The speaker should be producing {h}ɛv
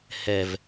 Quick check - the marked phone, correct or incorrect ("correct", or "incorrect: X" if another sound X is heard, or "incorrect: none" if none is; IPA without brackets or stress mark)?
correct